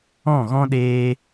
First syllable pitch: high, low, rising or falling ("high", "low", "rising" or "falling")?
falling